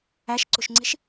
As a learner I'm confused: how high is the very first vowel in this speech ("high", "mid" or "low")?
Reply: low